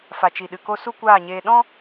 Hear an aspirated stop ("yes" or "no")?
no